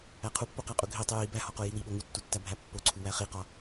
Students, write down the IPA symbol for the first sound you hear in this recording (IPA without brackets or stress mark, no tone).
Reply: æ